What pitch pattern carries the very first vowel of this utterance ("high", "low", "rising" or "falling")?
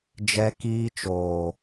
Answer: high